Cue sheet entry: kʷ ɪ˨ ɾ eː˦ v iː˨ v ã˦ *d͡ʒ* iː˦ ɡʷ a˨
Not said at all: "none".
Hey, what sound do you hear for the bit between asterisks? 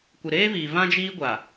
d͡ʒ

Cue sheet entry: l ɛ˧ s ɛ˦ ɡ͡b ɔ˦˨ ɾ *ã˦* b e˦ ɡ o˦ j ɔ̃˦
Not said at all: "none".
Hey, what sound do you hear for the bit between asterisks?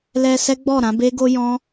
ã˨˦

